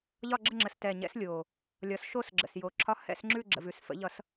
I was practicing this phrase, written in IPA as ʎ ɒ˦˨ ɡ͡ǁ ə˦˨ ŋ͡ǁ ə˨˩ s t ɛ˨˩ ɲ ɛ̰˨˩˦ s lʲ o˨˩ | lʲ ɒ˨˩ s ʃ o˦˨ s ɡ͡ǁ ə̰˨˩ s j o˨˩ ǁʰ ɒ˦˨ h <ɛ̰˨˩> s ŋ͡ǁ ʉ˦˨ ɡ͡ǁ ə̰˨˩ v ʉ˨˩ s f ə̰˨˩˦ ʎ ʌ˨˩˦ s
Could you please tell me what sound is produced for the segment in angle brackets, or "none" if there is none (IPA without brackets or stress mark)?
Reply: ɛ̰˦˨